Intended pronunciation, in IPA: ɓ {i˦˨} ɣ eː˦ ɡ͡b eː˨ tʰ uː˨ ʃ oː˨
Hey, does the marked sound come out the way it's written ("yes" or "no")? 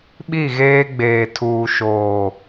yes